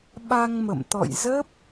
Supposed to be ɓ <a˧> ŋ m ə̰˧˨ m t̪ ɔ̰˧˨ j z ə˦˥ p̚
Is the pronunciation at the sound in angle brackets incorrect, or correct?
correct